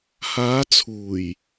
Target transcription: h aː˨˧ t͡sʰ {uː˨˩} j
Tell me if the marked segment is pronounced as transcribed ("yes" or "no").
yes